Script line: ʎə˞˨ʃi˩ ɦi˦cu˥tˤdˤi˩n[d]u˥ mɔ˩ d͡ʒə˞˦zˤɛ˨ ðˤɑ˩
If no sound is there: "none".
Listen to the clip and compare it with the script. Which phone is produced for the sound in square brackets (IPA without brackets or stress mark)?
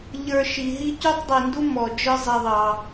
d